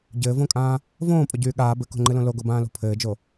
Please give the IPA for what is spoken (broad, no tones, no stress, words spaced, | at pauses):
ɟɘːvõkʼãː | võːpʼoɟyː ɠaː bɘko̤ŋ͡ǃɨlõ loɡobãːlo̤ pʰɘːd͡ʒo